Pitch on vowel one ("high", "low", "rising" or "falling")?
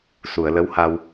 low